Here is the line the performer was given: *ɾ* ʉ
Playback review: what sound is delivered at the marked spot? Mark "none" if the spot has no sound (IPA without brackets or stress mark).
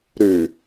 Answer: ɾ